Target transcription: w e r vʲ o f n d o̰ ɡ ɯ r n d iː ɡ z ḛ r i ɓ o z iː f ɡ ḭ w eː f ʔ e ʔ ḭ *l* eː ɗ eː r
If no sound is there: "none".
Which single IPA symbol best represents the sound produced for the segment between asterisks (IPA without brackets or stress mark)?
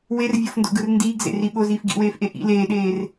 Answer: l